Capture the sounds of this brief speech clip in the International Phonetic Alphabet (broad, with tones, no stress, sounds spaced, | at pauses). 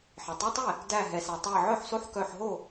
ħ e˩ tˤ ɛ˧˥˧ tˤ e˥˩ | d æ˧˩ ɦ ɛ˩ s æ˩ tˤ æ˧˩ ʕ œ˥˩ ħ s o˥˩ ħ k œ˧˩ ħ ɦ o˥˩